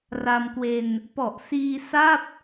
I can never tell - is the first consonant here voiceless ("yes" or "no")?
no